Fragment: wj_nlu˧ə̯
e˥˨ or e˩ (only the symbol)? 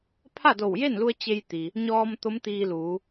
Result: e˥˨